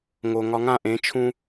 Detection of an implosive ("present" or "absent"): absent